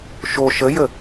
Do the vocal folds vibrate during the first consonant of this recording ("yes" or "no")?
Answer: no